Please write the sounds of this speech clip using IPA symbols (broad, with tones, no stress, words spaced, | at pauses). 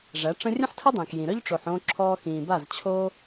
ʐæ˨˦ʈ͡ʂə̃˦ rʲə̃˦ħtʰə˦dˤĩ˨k jĩ˨ɾœ˦ʎ ʈ͡ʂo˧ħõː˦ǁʰɔː˦ xĩː˨ba˦˨zt͡ɕʰo˦